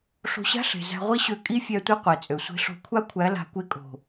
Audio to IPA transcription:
ɬ o̤˧ ɕ a̤˦ ɬ e̤˨ z æ̤˧ ʁʷ i˦ ɕ ø˧ kʼ i˦ fʲ æ˧ tʷ i˧ qʷ e˨ t͡sʼ ø˨ sʷ e̤˧ ɬ o̤˧ kʷʰ a˦ kʷʰ æ˨˦ l a̤˧ kʷ e˧ kʼ o̤˨

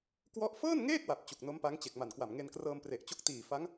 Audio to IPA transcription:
k w ɔ˥˩ ʔ f ɤː˥˩ n ŋ eː˥˩ k̚ w a˨˩ p̚ t͡ɕ u˨˩ k̚ n o˦˥ m p a˦˥ ŋ t͡ɕ e˨˩ k̚ m a˨˩ n k w a˨˩ m ŋ e˧ n k r ɤː˧ m p r e˨˩ ʔ t͡ɕ o˦˥ k̚ t iː˨˩ f a˦˥ ŋ

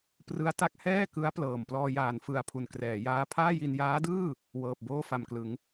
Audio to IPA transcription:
p r ɯ˦˥ a̯ t a˦˥ k̚ h ɛː˥˩ k ɯ˦˥ a̯ p l ɤː˨˩ m p l ɔː˧ j aː˨˩ n f ɯ˧ a̯ pʰ u˨˩ n k r ɛː˩˦ j aː˦˥ pʰ aː˥˩ j i˧ n j aː˦˥ d ɯː˥˩ | w ɤː˨˩ p̚ b oː˥˩ f a˨˩ m k l ɯ˩˦ ŋ

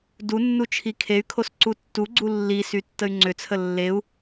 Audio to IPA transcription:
d u nː u t͡ʃʰ i kʰ e y̯ kʰ o s ǀ u tː u ɡ͡ǀ u lː i s y tː ə y̯ ŋ͡ǀ ʏ t͡sʰ ə lː e u̯

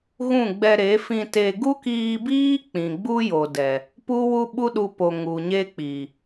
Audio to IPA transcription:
ɣ ũ˦˨ ɡ͡b ɛ˧ ɾ e˨˦ f ĩ˧ t e˧ ɡ u˦ k iː˧ b iː˦ k͡p ĩ˨ ɡ͡b u˦ j o˨ d ɛ˨ | p u˦ w u˦ ɓ u˦ ɗ u˧ p o˨ ŋ u˨ ɲ e˦ k͡p i˨

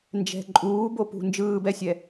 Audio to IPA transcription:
n d͡ʒ ɛ̤ ǃʼ uː b o p ṳ n d͡ʒ ɯː b ɛ sʲ ɛ

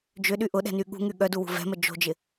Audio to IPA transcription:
d͡ʒ ʏ ɗ y ʔ ʊ ɗ ɛ̤ n y ɠ ṳ ŋ y ɠ œ d u w ṳ v ɛ̤ m ə d͡ʒ o̤ d͡ʒ ɪ

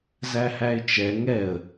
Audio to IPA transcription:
z æ h æ ɪ̯ t͡ʃ ɛ ŋ ɛ ə̯

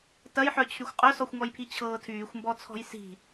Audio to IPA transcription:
t ɐ j ħ œ t͡ɕʰ y xʷ qʼ œ s ɔ xʷ ŋ ɔ j pʰ i t͡ɕʰ ɤː tʰ yː xʷ m b ɔ t͡sʰ ɔ̤ j s i̤

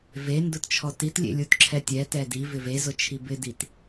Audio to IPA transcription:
v e n d ʊ t t͡ʃʰ ɔ t i t lʲ ḛ lʲ u t ǁʰ ɛ tʲ ɛ t ɛ d i v ɪ v e z ʊ t͡ʃʰ i b ɪ d i t

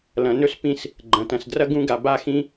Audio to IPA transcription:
l ɐ̃˩ n ɵ˥ s p ĩ˦ s | ɡ͡ǃ ɐ̃˩ t ɐ̃˩ s d r ɐ˥ ɡ ũ˦ ɡ a˨ b a˦ x ĩ˦

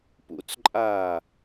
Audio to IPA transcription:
p ṵ t͡s ǃʼ aː

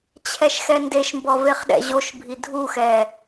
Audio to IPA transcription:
t͡ɕʰ ɛ ʃ x ɛ n d e ʃ m b ɔ v e χ ɗ ɛ̰ ʑ o ʃ bʱ i dʱ u x ɛ

